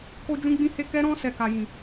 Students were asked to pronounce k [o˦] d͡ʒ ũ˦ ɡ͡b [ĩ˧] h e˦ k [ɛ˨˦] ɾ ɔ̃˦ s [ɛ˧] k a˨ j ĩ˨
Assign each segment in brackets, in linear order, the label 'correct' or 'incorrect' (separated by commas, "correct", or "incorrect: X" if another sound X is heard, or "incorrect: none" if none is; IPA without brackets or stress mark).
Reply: correct, incorrect: ĩ˦, incorrect: ɛ˦, correct